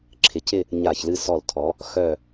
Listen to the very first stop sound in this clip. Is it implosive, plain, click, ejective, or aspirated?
click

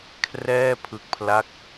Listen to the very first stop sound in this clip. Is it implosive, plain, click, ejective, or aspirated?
aspirated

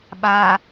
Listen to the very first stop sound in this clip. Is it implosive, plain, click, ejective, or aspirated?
implosive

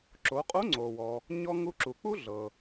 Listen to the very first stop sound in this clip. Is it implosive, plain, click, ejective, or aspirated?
click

